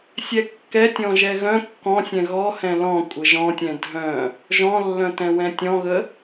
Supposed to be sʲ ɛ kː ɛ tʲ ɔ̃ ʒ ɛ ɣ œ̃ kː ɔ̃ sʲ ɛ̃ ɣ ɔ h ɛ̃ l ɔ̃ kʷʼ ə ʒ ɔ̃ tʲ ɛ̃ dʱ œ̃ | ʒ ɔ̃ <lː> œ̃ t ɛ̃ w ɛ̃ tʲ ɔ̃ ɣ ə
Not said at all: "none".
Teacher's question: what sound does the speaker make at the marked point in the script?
lː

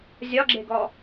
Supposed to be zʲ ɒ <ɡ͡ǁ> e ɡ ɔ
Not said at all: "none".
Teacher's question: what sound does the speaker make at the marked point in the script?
ɡ͡ǁ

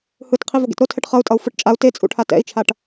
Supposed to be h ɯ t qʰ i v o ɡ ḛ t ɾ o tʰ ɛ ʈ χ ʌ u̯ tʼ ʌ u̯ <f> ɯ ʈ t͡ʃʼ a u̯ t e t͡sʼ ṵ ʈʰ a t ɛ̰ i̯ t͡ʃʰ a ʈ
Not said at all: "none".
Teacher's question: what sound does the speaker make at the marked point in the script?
f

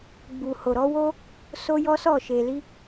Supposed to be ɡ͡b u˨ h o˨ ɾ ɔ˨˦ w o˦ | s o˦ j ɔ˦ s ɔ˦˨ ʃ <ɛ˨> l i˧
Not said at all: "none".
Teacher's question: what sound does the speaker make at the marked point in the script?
e˨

